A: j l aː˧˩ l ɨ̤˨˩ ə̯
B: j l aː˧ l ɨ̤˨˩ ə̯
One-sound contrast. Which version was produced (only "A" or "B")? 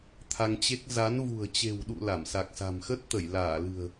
A